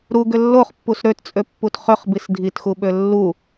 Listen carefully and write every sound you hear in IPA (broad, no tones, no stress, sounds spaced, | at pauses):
ɾ u ɡ ʏ lː o χ pː u s ɾ ø t t͡sʼ ø pː u t χ ʏ χ b i s dʱ i t x u ɓ ø lː u